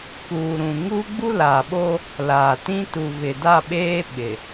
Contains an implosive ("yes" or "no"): yes